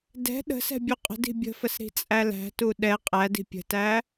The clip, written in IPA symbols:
d ɛ̤ ɗ ə̤ s ɛ̤ bʲ u qʼ ə̤ d i̤ bʲ ə̤ f ə s ɾ i̤ t͡sʼ æ l æ̤ t u ɗ ɛ qʼ æ d i̤ pʲ ə̤ t æ

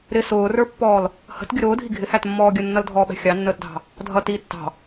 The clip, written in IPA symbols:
ɾ ɪ s ʊː r ə˞ pː ɔː l | h ə̤ t ɡʲ ə ɾ ʊː dʱ i ɡʱ ɪ h æ t mː ɔː ɡʲ ə nː ʌ l dʱ ɔː ɓ ɛ̤ xʲ ɑ nː əː t dʱ ɑ̤ | dʱ ʌ t iː tː ɑ̤

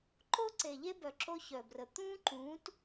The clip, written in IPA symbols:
ǃ o˦ ǀ e˨ ʎ e˦ b œ˨ ǁ o˦ ç œ˨ b r ə˨ t̪ ũː˦ ǃ ũː˨˦ t

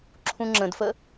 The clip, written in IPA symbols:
ǁʰ ũ ŋ͡ǁ ə̃ d f ə

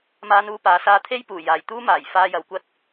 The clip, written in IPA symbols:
m aː˥ n uː˥ p aː˨˥ s aː˥ t̪ʰ e˥ j p uː˨˩ j aː˨ j t̪ uː˥ m aː˨˩ j f aː˧ j ɐ˨˧ w kʷ ɐ˥ t̚

